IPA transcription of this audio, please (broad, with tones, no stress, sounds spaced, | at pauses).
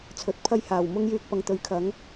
t͡sʰ ɵ˨˥ t̚ pʰ ɐ˥ j h aː˨˩ w m ʊ˥ ŋ j yː˧ k̚ p ɐ˨˧ ŋ t̪ ɵ˨˥ ɥ kʰ ɐ˨˥ ŋ